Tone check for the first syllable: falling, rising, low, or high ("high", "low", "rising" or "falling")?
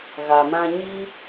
low